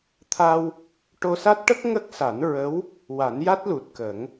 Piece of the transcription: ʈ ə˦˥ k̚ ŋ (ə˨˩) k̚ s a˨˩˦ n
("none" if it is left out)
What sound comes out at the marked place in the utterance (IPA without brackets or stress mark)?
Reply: ə˦˥